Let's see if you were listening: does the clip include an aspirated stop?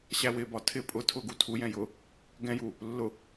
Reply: yes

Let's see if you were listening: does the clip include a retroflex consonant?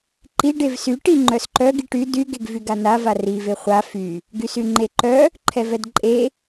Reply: yes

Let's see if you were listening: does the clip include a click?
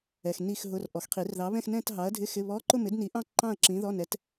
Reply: yes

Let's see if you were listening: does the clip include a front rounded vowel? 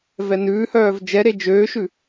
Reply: yes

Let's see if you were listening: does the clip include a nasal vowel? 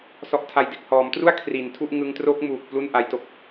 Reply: no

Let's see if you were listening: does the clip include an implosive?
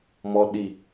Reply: yes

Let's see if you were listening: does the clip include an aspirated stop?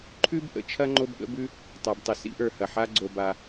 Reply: yes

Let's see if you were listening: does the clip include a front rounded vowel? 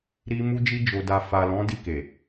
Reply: no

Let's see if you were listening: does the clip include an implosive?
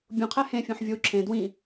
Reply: no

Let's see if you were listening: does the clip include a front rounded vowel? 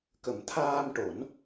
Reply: no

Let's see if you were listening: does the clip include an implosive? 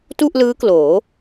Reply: no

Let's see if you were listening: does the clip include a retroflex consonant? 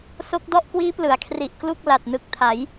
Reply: no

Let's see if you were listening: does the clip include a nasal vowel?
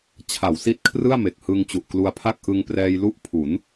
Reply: no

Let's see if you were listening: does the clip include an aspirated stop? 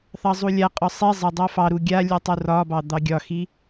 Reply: no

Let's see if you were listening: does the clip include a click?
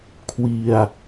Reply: no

